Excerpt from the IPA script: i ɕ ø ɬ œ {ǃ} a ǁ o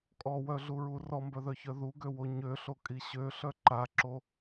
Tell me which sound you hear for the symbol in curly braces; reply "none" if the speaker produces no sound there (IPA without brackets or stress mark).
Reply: ǃ